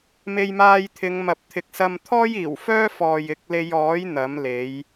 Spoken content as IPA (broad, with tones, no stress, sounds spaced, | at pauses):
m e˧ j m aː˧ j t̪ʰ ɪ˨˧ ŋ m ɐ˨ p̚ t̪ʰ ɪ˨ k̚ s ɐ˧ m t̪ʰ ɔː˥ j iː˨˩ w f œː˥ f ɔː˨ j ɪ˨˥ k̚ l e˧ j ɔː˨˥ j n̪ ɐ˨˥ m l e˨˥ j